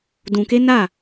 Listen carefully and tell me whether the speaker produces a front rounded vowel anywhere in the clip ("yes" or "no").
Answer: no